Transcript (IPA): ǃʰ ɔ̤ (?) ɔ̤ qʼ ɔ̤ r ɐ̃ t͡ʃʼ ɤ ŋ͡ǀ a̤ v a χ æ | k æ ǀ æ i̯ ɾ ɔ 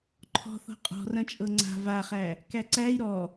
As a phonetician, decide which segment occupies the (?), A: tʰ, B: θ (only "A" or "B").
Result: B